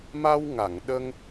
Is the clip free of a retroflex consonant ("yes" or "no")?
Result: yes